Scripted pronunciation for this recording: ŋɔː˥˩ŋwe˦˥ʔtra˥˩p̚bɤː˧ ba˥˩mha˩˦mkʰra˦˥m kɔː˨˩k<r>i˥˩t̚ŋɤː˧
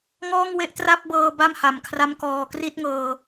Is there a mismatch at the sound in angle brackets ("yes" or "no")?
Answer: no